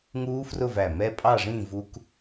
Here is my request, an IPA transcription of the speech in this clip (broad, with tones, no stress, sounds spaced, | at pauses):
ŋ uː˦˥ f r ʊ˥˧ v æ˧˩ m ɛ˦˥ pʼ ɑ˥˧ ʐ ĩ˥˧ v u˦˥ k